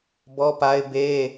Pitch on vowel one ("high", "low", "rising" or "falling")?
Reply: high